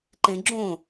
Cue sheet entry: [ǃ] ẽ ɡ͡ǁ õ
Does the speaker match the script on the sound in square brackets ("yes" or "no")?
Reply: yes